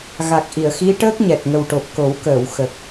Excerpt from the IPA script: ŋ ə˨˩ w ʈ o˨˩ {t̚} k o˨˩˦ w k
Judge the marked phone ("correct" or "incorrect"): incorrect